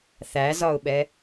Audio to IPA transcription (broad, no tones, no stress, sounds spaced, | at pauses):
θ æ z ɒ ʊ̯ ɓ ɛ